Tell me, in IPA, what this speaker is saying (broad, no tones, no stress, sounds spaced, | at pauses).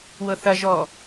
w ɤ θ ɐ ʒ ɔː